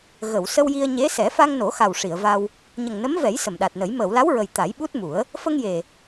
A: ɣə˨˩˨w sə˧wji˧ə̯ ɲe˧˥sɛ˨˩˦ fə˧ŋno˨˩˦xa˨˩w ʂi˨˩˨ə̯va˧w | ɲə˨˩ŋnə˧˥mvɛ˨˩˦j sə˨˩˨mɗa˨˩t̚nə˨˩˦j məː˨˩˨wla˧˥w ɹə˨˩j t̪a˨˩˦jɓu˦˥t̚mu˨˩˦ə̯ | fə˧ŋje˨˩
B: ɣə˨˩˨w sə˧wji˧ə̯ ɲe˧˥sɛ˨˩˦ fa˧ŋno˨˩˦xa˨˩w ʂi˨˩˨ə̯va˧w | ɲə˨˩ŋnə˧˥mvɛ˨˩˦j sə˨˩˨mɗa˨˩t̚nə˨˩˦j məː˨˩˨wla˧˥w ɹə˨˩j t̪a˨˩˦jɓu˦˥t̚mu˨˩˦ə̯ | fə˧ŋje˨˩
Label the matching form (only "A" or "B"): B